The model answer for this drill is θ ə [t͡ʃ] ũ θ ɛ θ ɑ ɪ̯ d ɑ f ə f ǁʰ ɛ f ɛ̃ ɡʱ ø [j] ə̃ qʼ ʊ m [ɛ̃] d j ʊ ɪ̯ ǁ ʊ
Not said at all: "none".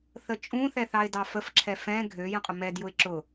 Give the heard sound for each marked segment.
t͡ʃʼ, j, ɛ

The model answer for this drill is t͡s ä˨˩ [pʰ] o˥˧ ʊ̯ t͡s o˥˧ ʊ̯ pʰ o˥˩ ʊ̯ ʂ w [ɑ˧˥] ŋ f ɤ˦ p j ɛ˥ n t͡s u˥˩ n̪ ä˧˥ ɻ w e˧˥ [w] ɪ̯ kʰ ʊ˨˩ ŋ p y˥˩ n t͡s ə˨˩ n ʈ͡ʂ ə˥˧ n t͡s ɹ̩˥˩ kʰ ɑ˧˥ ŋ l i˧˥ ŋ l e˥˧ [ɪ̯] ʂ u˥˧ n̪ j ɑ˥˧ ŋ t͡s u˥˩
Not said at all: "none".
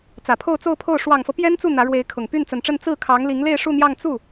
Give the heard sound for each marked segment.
pʰ, ɑ˨˩, none, ɪ̯

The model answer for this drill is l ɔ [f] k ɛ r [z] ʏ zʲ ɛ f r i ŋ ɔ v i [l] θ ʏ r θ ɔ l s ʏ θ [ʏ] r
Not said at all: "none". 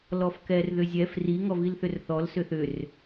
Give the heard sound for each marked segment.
f, ð, l, ʏ

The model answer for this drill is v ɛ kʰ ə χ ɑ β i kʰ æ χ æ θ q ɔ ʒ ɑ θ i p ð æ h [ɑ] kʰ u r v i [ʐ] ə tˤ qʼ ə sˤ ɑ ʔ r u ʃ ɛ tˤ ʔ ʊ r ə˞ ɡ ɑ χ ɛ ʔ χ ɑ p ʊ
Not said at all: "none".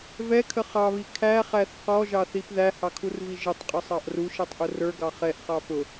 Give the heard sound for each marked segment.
ɑ, ʒ

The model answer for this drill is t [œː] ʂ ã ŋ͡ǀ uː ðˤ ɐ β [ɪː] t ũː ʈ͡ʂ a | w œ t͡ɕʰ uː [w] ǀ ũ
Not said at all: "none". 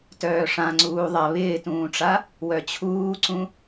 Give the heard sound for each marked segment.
œː, ɪː, none

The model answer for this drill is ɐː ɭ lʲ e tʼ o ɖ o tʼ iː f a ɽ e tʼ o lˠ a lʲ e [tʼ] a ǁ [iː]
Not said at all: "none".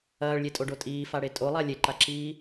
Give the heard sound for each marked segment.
ǃ, iː

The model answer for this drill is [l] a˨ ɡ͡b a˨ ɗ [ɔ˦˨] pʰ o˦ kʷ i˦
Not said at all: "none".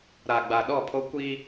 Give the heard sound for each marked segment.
ɾ, ɔ˦˨

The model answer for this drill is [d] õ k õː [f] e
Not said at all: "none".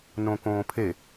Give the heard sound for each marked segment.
n, pʰ

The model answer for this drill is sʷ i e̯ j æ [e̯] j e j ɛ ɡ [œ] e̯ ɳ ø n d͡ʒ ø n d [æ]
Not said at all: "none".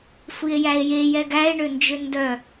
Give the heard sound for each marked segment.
e̯, æ, œ

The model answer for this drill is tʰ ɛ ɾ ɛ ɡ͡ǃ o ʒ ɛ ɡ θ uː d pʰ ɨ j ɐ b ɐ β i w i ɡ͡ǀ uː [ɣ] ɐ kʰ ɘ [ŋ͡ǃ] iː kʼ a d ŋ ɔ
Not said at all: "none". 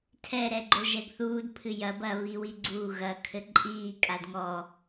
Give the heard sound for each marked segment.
ɣ, ǃʼ

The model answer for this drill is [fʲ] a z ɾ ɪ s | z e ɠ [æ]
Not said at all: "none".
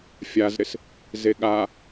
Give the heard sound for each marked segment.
fʲ, a

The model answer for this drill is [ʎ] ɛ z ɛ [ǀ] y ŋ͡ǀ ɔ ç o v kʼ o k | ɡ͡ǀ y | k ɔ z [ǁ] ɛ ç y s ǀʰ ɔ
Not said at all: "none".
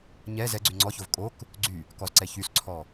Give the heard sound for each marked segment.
ɲ, ɡ͡ǀ, ǀ

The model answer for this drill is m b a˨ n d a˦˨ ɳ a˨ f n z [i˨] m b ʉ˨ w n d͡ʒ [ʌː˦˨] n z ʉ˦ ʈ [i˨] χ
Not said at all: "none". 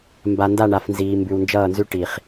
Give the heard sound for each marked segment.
iː˨, ʌː˦˨, i˨

